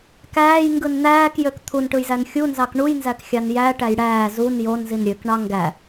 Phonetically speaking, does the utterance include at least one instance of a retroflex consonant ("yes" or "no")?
yes